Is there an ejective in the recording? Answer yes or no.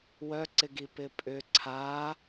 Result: yes